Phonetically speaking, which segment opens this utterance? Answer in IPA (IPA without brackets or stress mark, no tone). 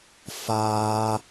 f